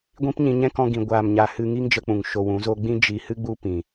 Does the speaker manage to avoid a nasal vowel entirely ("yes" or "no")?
no